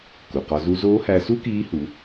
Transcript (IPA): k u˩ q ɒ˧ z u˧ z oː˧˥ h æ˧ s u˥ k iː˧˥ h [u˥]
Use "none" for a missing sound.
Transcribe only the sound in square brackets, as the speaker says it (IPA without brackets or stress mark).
u˩˧